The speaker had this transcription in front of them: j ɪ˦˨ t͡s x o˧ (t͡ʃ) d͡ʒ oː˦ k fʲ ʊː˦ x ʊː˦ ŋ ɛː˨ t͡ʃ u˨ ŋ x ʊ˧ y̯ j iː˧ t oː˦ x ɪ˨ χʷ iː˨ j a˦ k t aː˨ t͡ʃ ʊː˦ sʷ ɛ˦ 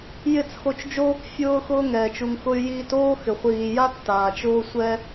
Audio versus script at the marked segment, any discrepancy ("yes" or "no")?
no